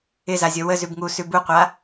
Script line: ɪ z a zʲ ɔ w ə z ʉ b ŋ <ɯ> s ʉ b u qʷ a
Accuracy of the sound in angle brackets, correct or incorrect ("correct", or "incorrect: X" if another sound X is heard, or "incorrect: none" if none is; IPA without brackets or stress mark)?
incorrect: u